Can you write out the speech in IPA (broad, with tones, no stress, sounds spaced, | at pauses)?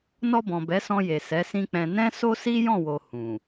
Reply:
n ɔ˧ b ɔ̃˨ b ɛ˨˦ s ɔ̃˧ j e˨ s ɛ˨˦ s ĩ˦ k͡p ɛ̃˧ n ɛ̃˦ s o˦ s i˦ j ɔ̃˦˨ w o˨ h ũ˨